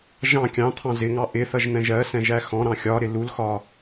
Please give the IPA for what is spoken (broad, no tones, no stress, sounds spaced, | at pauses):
ʒ ɑ̃ kʲ ɑ̃ t̪ʰ ɑ̃ z ɪ ŋ ɑ ʔ ɪ θ ʌ ʒ n̪ ɛ̃ ʒ ɜ s ɛ̃ ʒ æ x ɔ̃ ɾ ɑ̃ xʲ ɒ ɾ ɪ l u l x ɒ